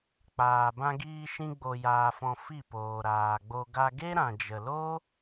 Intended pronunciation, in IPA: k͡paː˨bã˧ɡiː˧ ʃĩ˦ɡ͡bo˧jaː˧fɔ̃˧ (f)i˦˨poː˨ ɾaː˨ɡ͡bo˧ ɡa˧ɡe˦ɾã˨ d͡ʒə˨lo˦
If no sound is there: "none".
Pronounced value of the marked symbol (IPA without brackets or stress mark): f